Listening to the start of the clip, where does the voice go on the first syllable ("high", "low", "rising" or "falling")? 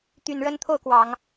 low